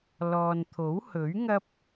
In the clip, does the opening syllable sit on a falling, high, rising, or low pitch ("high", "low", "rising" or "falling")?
low